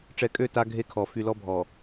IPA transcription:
ʈ͡ʂɛ˨kʼø˦˨ ta˦ ɡʱe˦kʰɔ˨ fy˨lɔ˦bʱɔ˨

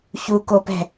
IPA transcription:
çukopɛ̤

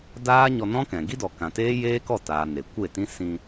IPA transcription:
daː˦ ɲɔ˧nɔ̃˦kɛ̃˨ ɡi˦dɔ˨ kã˨teː˦ jeː˦kɔ˦˨taː˨ ne˨kʷe˦˨tĩ˦ sĩ˧

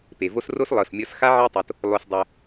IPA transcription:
pe˨vo˦s ro˦slˠɤ˨smʲɤ˧s xa˦ʕɛ˦tˤo˧t | lˠo˧sdˤɛ˧

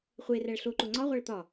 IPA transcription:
χʷe ræɭɬoǃo ŋ͡ǀɒʁʷæɭ t̪ɒ

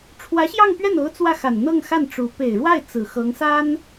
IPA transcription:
ʈ͡ʂʰwä˧˥ɕjɑ˥˧ŋpɥɛ˥˩no˧˥ʊ̯ t͡swä˥˩xa˨˩nn̪ɤ˥˧ŋxa˥˩n ʈ͡ʂu˧˥ pe˨˩ɪ̯ɻwa˥˩ɪ̯ t͡sɹ̩˨˩xɤ˧˥ŋsa˥n

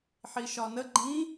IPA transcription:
ħiʃɒnə ɡ͡ǃĩ

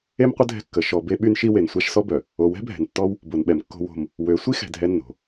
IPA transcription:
e˦mqʷə˦ dʱɛ̤˦kːə˨˦ ʃɔ˨ be˦ɓy˦nʃi˦ we˨n sʷa˦ʃsɔ˦bœ˨ | o˨wɛ̤˦bʱɛ̤˨ntːɔ˦w | bo˨nɓɛ˨mkːo̤˦ wo̤˦m | wø˨˦ sʷi˦xɛ̤˨ dʱɛ˦nːo̤˨

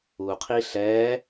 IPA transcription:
uqʰi ɬɛ

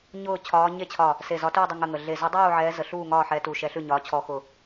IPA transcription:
ɲʊː˥˨t͡ɕʰɒː˧˥ ɲe˥˨t͡ɕʰɒ˧˩ | se˧˩zɒ˧˥tuː˥˨dˤə˥˨ ŋə˥˨ŋə˧˩ ɮe˧˩zʊ˧˥dˤuː˥˨ ʕɛː˧˥zə˧˩ɬuː˥˨ ŋɒː˥˨ ħɛ˧˥tu˧˩ ʃɛ˧˥ɬʉ˥˨ɲɒː˧˥ t͡ɕʰɔ˧˥xʊ˧˩

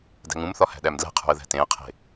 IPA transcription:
dæ̤ŋũmθɒ hæ̤ɗæmdlæ̤qʰṳə̯ ðæ̤tẽə̯qʰe̤

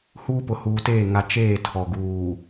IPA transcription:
huː˦pʊ˨huː˨teː˦˨ ŋa˨ t͡ʃeː˦˨ tʰɔ˨ ɡuː˨

